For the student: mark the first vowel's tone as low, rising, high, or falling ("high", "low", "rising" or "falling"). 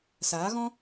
rising